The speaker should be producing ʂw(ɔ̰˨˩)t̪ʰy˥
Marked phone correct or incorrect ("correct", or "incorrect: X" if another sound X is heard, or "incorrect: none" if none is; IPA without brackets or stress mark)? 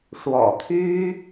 correct